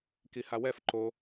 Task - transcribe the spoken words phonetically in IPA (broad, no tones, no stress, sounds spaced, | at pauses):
k i h a w ɛ f ǃ o